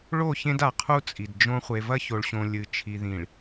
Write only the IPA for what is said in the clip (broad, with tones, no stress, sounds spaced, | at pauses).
ɭ o˦˨ ç ẽ˦ d a˨ qʰ u˦ t͡sʼ i˨ d d͡ʒ õ˦ χʷ e˨ v ɐ˦ ç o˨ ɭ ɕ õ˨ lʲ ɨ˨ t͡ʃʰ i˨ ð ĩ˨ ɭ